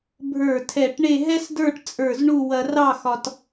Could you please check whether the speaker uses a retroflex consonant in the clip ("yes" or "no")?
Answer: yes